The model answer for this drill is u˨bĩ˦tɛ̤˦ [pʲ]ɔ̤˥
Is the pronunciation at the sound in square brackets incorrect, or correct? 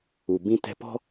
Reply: incorrect